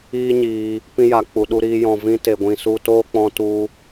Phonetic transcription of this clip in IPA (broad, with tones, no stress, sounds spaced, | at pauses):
iː˦ ɲ iː˧ | p ĩ˧ j a˨ k͡p u˨ ɗ u˧ ɾ iː˧ j ɔ̃˨ v ĩ˧ t e˨ ɡʷ ĩ˨ s u˧ t oː˦ k͡p ɔ̃˧ t u˧